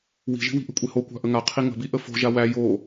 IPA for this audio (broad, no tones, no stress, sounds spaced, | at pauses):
w i̤ ʒ i̤ w i̤ ʔ ə̤ kʷʼ e h o kʷ a̤ ʔ ə ŋ a qʰ i ŋ ə̤ b i ʔ ə f o̤ ʒ a w æ j o